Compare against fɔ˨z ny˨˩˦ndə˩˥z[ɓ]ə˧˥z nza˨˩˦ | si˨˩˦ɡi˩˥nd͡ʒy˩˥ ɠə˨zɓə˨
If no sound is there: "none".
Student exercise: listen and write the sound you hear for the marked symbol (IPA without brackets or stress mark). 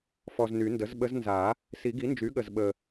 ɓ